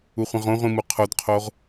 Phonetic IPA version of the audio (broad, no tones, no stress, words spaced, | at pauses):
uχʷĩʁõʁʷĩ muqʰodqʰoʁ